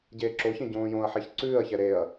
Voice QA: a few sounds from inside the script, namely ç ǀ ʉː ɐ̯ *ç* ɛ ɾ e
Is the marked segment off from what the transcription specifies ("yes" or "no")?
no